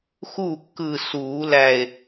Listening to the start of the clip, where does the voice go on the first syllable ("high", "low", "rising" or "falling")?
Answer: falling